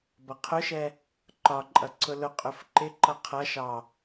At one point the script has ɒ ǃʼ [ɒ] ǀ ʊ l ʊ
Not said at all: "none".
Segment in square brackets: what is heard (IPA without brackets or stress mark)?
ʌ